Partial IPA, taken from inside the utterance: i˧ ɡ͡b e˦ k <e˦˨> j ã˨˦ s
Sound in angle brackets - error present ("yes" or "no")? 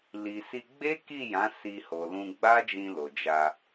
yes